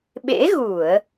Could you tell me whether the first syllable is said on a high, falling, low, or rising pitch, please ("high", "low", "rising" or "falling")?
rising